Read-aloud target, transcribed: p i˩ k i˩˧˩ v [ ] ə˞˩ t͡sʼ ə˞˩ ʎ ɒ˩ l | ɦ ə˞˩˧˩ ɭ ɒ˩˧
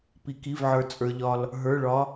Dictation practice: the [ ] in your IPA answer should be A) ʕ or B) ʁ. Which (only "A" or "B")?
A